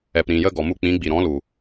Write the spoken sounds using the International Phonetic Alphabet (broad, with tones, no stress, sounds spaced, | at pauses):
ɛ˨ p ɾ ĩ˨ j ə˧ ɡ ɔ˨ m u˧ k͡p ĩ˨˦ ɡ͡b i˨ ɾ ɔ̃˨˦ l u˨